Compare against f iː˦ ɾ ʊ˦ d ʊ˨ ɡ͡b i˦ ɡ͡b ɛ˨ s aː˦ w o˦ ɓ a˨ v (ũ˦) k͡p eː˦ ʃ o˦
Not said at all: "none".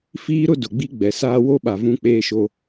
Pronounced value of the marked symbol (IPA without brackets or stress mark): ũ˦